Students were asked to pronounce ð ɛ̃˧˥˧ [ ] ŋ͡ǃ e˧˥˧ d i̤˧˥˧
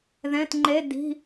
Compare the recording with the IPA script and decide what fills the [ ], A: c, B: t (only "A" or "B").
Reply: B